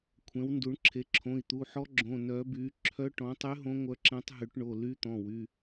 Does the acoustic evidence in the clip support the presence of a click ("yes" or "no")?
yes